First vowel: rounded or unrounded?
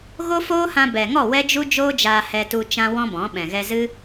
rounded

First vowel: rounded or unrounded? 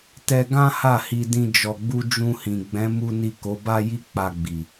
unrounded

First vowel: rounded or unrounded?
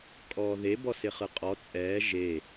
rounded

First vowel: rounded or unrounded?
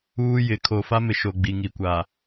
rounded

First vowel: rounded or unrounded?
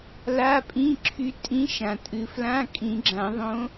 unrounded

